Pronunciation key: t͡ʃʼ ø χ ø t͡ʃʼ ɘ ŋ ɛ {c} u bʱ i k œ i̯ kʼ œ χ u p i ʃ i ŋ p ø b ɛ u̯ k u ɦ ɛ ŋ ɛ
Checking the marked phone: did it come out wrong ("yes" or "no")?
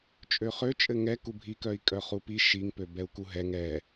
yes